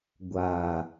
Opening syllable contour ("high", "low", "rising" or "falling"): low